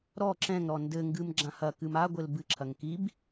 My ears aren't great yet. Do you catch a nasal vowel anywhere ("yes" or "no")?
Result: yes